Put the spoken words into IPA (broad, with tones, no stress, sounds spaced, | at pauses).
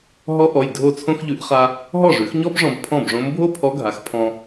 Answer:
ɦ ɔ˧˥ ʔ ɔ˩˧˩ j dʱ o˥˩ t͡sʰ õ˥ x ʎ ʉ˧˥ ʔ χ a˥ | ɦ ɔ˥˩ ʐ ʉ˩˥ x ɲ ɔ˥ b ʐ ɔ̃˧ b pʰ ɔ̃˥˩ b ʐ õ˧˥ m bʱ o˥ pʰ ɔ˧˥ ɡʱ a˩˥ x pʰ ɔ̃˧